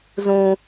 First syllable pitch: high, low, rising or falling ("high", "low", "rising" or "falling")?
low